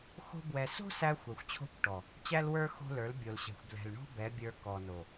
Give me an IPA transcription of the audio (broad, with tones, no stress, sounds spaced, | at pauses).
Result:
x o̤˦ b w ɛ˧ s o̤˦ s æ˧ xʷ ɛ˨ xʷ t͡ɕʰ o̤˦˨ kʷ ʈ ɔ˨ | t͡ɕ æ˦ l w ə˞˦ x o̤˦ l ə˞˨˦ l bʲ o˨ l ɕ ɛ̤˨ xʷ b l ɛ̤˨ l ɳ o̤˦ b ɛ˨˦ bʲ ə˞˧ k ɔ˨ n o˨